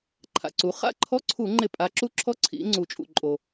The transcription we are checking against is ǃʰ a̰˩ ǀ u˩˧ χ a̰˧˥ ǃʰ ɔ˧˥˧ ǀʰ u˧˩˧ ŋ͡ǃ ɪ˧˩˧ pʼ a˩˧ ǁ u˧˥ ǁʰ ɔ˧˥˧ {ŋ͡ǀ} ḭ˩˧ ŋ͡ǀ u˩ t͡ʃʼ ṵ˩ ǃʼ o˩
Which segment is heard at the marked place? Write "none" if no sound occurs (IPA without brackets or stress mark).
ǀʰ